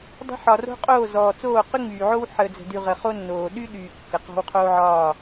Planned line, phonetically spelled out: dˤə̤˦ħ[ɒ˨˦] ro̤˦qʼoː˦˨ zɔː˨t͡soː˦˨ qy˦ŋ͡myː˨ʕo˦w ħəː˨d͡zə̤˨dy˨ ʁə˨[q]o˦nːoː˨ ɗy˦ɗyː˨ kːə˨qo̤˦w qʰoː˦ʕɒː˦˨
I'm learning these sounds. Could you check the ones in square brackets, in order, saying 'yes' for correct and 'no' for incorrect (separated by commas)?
no, no